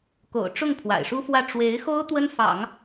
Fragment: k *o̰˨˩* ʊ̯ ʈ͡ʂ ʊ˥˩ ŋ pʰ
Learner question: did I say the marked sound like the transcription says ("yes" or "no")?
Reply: yes